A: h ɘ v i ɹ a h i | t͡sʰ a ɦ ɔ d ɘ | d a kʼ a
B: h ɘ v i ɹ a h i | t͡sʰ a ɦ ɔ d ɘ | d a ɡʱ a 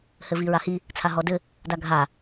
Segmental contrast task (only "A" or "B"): B